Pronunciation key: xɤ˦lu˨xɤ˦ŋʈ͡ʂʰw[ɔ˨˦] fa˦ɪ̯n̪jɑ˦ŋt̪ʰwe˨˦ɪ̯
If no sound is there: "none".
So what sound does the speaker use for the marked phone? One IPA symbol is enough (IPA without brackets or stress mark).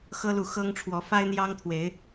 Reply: ɔ˨˦